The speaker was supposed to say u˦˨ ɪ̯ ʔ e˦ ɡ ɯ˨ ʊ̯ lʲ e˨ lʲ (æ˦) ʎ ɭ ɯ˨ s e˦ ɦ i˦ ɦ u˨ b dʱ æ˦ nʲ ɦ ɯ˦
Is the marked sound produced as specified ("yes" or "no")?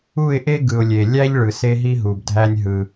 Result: yes